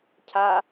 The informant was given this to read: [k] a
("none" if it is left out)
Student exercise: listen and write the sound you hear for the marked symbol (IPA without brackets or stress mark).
cʰ